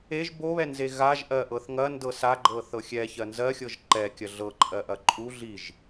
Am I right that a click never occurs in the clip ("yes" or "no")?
no